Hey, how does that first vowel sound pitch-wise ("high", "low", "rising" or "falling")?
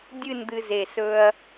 falling